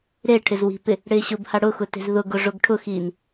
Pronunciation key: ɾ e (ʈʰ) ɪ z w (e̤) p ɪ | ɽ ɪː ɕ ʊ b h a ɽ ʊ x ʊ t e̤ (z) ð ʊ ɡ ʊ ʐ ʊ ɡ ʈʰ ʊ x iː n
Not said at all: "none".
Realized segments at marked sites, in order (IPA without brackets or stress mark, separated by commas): ʈʰ, i̤, z